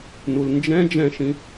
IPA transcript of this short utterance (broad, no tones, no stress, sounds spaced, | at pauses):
n u l n d͡ʒ ɛ̃ d͡ʒ ɛ̃ ʃ ĩ